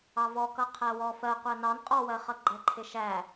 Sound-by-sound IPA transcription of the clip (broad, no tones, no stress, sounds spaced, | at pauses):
ɑ v ɔ k ʌ qʰ æ w ɔ f ɜ qʷ æ n ɑ n qʼ ɔ w ɜ χ ʌ ɡ͡ǃ ɛ ǃʰ ɪ ʃ æ